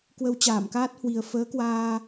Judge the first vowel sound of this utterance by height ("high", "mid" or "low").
mid